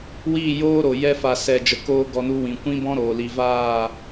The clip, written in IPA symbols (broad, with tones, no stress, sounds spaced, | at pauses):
w iː˦˨ j oː˦ ɾ o˨ j ɛ˧ f a˨ s ɛ˨ d͡ʒ ə˨ k oː˦ ɡ ɔ˧ n u˧ w ĩ˨ kʷ ĩ˦ b ɔ̃˦ ɾ oː˨ l i˨ v aː˦˨